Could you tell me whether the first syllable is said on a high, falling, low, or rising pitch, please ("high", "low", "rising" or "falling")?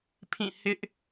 falling